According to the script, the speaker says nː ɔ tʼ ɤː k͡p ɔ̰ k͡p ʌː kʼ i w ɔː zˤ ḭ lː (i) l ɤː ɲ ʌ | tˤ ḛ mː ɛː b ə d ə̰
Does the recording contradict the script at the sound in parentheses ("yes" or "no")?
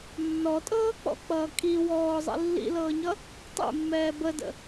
yes